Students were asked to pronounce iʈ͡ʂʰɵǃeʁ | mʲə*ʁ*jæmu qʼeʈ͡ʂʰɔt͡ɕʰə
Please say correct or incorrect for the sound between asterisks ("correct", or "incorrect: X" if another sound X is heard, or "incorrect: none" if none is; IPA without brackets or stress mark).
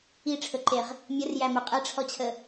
incorrect: r